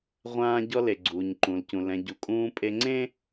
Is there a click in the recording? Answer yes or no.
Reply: yes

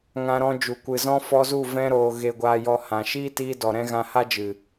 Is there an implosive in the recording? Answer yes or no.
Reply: no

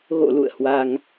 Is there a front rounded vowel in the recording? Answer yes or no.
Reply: no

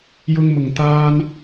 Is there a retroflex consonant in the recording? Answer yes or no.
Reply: no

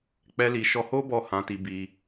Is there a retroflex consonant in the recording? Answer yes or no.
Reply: no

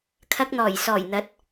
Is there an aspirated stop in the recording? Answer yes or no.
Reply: yes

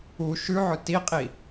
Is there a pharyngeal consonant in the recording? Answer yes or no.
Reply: yes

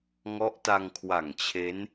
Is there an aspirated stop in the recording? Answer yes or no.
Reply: yes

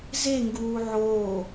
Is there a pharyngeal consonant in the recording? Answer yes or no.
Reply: yes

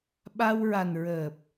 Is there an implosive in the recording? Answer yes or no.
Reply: yes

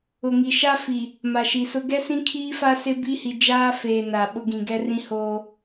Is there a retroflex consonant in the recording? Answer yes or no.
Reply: no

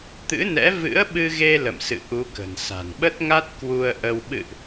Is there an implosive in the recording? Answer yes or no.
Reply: yes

